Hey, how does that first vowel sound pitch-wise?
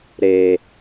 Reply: low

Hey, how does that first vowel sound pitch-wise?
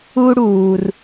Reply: high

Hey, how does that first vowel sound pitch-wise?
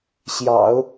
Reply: low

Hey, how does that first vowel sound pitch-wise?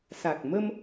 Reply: low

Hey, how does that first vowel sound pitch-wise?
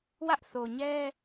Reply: high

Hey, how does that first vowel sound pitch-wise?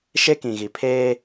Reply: high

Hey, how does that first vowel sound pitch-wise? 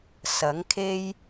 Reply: rising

